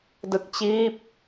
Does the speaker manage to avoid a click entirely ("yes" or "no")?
yes